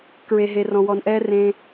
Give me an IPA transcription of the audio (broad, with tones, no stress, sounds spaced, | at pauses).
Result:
k ɹ e˦ ɦ e˦ r ɔ̃˧ w ɔ˧ n ʔ ɛː˦ r ẽ˦